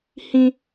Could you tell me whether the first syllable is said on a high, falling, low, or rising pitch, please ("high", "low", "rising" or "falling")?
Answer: high